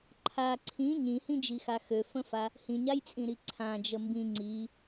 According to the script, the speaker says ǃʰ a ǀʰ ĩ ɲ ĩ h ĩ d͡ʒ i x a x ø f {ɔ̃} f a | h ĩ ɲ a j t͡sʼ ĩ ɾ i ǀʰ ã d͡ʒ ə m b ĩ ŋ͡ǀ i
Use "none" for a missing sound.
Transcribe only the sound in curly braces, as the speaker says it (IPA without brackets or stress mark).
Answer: ə̃